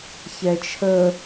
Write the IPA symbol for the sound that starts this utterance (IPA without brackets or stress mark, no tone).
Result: ç